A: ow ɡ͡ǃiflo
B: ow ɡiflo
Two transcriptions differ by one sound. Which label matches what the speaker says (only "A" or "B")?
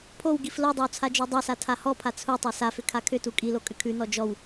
B